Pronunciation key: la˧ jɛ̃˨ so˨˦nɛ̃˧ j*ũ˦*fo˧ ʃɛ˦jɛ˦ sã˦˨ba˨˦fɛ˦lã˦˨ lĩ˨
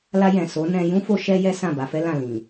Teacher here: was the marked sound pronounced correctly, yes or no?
yes